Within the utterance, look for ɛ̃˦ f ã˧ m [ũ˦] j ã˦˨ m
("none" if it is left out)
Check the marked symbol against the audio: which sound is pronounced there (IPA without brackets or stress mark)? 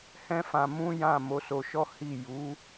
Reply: ũ˦